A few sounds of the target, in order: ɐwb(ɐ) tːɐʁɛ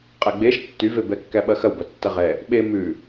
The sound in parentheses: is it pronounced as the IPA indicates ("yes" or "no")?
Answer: yes